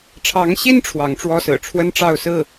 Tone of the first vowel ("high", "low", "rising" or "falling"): rising